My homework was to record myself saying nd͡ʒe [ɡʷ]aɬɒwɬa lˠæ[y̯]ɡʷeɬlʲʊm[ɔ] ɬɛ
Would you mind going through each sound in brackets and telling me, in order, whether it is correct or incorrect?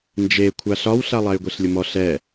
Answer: incorrect, correct, correct

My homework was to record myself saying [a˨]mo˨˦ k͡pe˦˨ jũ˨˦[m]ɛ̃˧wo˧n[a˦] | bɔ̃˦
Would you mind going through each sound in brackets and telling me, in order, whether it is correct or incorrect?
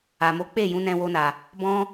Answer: correct, incorrect, incorrect

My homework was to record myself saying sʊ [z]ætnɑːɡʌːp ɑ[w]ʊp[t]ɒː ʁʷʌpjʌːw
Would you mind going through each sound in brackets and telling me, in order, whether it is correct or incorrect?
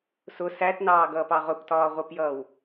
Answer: incorrect, incorrect, correct

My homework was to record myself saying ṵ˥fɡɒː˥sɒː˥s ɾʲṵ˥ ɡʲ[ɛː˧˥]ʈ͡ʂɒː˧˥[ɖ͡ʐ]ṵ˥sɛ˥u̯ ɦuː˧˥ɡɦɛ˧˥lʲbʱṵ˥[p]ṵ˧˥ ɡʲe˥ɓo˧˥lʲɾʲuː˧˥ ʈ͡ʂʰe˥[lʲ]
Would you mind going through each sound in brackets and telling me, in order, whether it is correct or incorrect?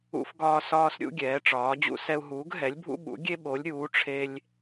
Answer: correct, incorrect, incorrect, correct

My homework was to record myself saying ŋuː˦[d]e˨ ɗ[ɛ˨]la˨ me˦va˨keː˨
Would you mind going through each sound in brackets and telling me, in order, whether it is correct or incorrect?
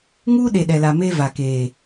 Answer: incorrect, correct

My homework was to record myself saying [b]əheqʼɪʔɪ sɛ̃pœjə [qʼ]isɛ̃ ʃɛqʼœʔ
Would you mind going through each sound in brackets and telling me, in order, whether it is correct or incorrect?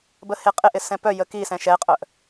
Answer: correct, incorrect

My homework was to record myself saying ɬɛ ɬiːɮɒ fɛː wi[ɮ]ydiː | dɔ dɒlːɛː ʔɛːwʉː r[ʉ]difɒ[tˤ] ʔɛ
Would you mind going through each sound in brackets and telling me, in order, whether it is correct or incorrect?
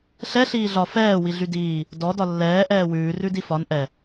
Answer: correct, correct, incorrect

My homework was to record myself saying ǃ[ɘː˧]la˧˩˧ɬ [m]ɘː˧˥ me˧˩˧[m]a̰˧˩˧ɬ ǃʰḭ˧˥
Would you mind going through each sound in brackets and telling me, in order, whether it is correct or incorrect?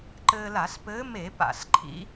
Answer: correct, incorrect, incorrect

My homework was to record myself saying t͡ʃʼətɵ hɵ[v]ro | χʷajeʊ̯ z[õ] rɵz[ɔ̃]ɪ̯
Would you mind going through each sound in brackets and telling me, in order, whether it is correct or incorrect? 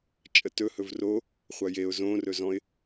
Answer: correct, correct, correct

